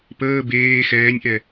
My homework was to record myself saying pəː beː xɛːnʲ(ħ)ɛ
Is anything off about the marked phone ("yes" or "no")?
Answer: yes